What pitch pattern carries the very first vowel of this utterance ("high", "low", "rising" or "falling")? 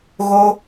high